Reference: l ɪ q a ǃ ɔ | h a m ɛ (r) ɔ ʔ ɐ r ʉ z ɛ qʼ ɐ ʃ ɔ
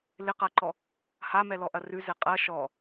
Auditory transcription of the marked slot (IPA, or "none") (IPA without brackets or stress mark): l